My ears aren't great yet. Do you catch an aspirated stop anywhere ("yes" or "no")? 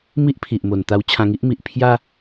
yes